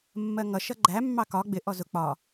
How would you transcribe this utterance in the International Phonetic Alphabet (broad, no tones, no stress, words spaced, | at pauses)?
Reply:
mːɜŋʌ ʃʌɡ͡ǃæ mːɑkɒ ɡ͡bɪ ʔɔzʊ k͡pɒ